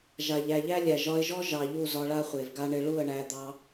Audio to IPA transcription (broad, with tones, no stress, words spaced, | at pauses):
ʒa˨ʎæ˨ʎæ˦ lʲæ˨ʒɒ˧ɪ̯ʒɔ˦ ʒɑ˨ ʎu˦˨zɒ˧ɭa˦ χʷe˨vɡa˦ ɳɪ˧ɭu˦˨ə̯ɳæ˧ d̪ɑ˦